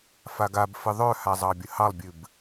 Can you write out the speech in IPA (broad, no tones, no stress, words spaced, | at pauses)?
faɡabfɨ ðˤœha zˤɑbʲəhɑlˠbʲɨb